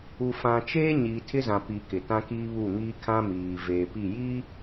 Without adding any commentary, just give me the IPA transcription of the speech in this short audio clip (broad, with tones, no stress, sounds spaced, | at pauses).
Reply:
u˨ f ã˨ t͡ʃ eː˦ ɲ iː˨ tʰ ɪ˦ z ã˨ p i˨ k ɪ˨ t ã˦ k iː˦ β u˦˨ ŋ iː˦ kʰ ã˦ m iː˨ v eː˨ p i˦˨ j i˦